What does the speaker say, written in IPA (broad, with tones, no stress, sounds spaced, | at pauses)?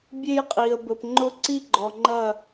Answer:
bʲ e˦ j qʼ i˨ ə̯ b ə˨ p ŋ͡ǃ ʊ˦ ǀ i˦ ɡ͡ǃ ɔ˨ ŋ͡ǃ ɐ˦˨